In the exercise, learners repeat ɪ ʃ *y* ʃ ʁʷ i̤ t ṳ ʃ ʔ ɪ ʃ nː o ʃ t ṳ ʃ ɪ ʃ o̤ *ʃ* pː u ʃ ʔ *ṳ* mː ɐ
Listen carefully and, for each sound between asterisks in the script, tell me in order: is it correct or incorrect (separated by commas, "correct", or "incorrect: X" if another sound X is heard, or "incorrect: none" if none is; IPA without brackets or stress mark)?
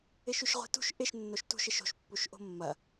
correct, correct, incorrect: o̤